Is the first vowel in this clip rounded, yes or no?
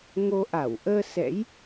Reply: yes